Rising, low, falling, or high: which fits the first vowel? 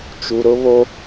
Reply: low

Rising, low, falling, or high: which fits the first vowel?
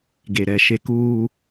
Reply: low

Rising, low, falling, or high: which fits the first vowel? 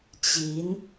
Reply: rising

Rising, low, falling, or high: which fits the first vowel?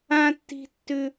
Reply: high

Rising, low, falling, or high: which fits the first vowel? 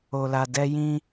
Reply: high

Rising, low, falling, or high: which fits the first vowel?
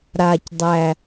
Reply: low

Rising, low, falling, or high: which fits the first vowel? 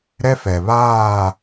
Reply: high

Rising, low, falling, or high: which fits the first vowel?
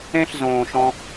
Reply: high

